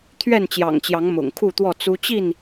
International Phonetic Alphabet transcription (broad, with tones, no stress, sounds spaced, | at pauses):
t̪ʰ ɥ ɛ˥˨ n t͡ɕ j ɑ̰˨˩ ŋ t͡ɕ j ɑ˨˦ ŋ m ʊ̰˨˩ ŋ kʰ u˥˨ t̪ w ɔ˥˨ t͡s u˦ t͡ɕ i˥˨ n